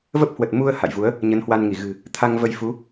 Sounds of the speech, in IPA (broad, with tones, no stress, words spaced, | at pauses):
və˦˥p̚hwə˨˩t̚ mu˧ə̯ ha̰˧˨jvu˨˦ə̯ | ɲə˨˦nhwa˧nŋi˧˩ ɣɨ̤˨˩ | t̪ʰa˧ŋvə˧jfu˨˦